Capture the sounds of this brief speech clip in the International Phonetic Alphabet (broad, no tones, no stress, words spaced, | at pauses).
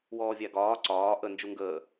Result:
wɔːvʲæɡɒː ǀɒː ʔə nd͡ʒuŋɡəː